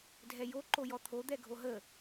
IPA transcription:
dʱ ɛ j o ǃ o j ɔ t̪ʰ o d̪ ɛ ɡʱ o ɦ ə

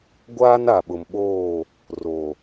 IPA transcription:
ɡʷ aː˦ n a˨ ɓ ʊ˨ m ɓ oː˦˨ | r o˨

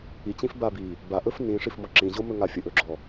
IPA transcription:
i t͡ɕ ĩ f b a b i | b a ʔ ɵ f n ĩ ʂ i f m ɔ ǁ ĩ ʑ o m ɵ ŋ a fʲ ə ʔ ɵ ɡ͡ǁ ɔ

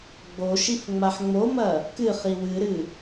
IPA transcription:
ɡ͡b o ʃ i f ŋ͡m a ħ ŋ͡m o m ɐ | k ɨ χ i w ɨ ɾ ɨ

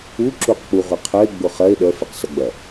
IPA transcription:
u ǁ u q k͡p u ʁʷ e qʰ œ e̯ ɡ͡b ʊ χ ɐ e̯ ɗ œ f e q s ɐ ɡ͡b ɐ

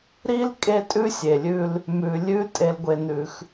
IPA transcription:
ɾ i˦ l kʼ e˦ tʼ ʉ˦ sʲ e˨ lʲ ʉ˦ l | m ʉ˨ lʲ ʉ˦ tʼ e˦ l ɡʷ e˦ n ʉ˦ x

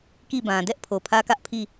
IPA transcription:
k i˦˨ b ã˨ d ɛ˦ ʔ pʰ o˨ pʰ ä˦ k ä˦ ʔ pʰ i˦˨

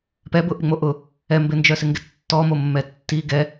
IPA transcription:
p ɛ b ʊ ʔ ɪ ŋ͡m o ʔ ʊ | ɛ m b ɪ n d͡ʒ œ s ɪ ŋ ɡ ɪ tː ɔ m o mː ɛ tː i ɡ ɛ

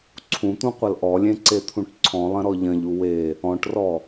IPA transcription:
ǀʰ ũ t̪ ũ qʷ ɐ l ʔ ɔ lʲ ẽ ǀ e t̪ʰ ũ ʈ ǀʰ ɔ̃ lˠ ɐ̃ ɾ ɔ ʎ ɐ̃ ʎ u w e | ɔ̃ ʈ r ɔ

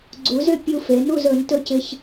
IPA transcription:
ɡ͡ǀ u˨˦ z ʏ˥˨ pʲ u˦ f e˨˦ n u˥˨ z ɵ˨˦ n t ɵ˥˨ c ɪ˦ ç

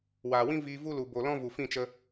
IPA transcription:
w aː˨ w ĩ˦ v iː˧ v u˦ l u˨ b o˨ l ɔ̃˦ v u˨ f ĩ˦˨ t͡ʃ ə˧

